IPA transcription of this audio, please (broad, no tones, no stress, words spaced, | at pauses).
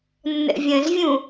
nːə̰vʲə̃zvʲũ